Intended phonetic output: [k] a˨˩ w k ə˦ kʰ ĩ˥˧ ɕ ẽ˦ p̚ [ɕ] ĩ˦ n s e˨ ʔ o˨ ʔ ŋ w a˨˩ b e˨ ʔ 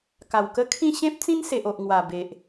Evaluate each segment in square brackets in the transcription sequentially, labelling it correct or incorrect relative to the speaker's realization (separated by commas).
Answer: correct, incorrect